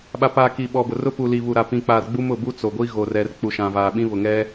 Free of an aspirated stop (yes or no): yes